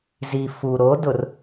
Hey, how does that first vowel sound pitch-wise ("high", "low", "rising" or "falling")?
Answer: low